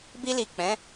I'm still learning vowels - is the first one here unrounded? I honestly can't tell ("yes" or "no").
yes